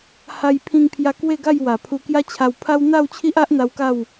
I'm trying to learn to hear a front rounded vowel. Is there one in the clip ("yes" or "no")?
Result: no